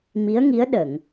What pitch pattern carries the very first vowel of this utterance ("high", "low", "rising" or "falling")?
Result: rising